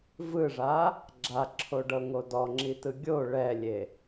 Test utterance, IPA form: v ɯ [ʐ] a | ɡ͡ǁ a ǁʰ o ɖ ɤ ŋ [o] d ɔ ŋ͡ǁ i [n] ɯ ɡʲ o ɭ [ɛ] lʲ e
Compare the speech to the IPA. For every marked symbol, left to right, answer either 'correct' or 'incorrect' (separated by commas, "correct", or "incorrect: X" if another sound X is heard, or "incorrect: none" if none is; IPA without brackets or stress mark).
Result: correct, correct, incorrect: t, correct